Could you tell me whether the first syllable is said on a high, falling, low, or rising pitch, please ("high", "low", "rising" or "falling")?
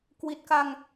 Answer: low